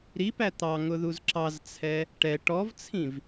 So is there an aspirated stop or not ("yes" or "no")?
yes